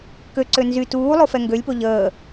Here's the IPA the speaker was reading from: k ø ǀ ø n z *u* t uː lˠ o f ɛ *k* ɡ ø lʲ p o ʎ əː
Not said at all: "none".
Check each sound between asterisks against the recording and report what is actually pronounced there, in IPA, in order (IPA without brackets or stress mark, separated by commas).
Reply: y, ŋ